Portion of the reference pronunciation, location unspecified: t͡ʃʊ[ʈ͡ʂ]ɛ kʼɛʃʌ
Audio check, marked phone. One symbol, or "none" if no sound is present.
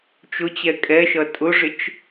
t͡ɕ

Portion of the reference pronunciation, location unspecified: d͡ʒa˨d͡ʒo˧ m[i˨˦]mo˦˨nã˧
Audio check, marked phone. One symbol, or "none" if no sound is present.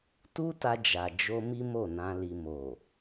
i˦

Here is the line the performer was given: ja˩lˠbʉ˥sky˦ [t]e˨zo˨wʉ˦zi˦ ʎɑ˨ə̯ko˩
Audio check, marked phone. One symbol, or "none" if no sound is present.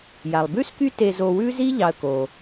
t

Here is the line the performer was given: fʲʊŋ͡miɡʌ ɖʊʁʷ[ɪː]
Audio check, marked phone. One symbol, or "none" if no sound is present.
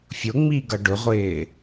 ɪː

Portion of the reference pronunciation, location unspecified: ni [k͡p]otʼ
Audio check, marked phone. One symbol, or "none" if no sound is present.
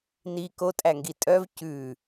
k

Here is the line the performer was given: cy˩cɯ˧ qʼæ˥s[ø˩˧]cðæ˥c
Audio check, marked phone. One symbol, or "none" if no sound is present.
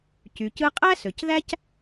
ø˩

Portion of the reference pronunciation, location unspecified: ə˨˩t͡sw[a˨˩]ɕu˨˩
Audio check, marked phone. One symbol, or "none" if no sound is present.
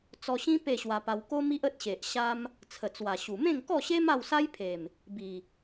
a˨˩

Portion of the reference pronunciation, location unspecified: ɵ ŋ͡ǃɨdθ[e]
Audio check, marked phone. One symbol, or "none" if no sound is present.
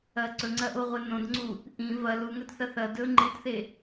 e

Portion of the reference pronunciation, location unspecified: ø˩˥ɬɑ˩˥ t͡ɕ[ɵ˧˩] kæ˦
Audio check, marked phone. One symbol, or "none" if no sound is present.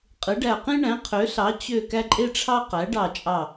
ø˧˩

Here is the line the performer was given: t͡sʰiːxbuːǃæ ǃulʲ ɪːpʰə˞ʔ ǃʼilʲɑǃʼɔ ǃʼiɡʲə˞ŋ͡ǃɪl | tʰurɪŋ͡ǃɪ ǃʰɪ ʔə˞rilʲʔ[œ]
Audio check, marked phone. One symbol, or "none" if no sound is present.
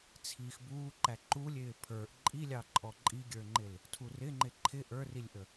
ə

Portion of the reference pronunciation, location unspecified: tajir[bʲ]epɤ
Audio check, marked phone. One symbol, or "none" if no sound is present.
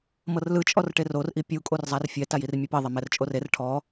mʲ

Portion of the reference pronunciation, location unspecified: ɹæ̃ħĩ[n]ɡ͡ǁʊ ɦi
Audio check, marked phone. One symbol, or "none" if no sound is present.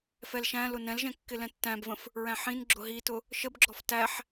n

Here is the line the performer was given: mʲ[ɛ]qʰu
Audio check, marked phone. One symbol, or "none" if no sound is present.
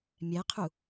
ɛ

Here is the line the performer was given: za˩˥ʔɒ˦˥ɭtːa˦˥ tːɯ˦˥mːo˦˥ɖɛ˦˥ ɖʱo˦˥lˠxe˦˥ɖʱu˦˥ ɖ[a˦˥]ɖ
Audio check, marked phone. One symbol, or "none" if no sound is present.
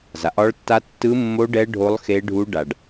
a˨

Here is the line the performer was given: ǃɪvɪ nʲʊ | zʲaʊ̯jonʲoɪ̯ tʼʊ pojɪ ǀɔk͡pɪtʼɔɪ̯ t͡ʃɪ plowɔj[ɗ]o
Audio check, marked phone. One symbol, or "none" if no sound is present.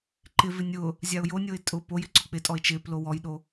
ɗ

